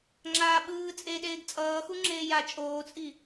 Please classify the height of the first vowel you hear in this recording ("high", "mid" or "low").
low